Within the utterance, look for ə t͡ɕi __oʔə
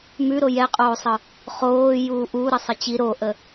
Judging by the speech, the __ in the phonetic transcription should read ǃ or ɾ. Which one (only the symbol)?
ɾ